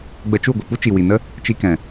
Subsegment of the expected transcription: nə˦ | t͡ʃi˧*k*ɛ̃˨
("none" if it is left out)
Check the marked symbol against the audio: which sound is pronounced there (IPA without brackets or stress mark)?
k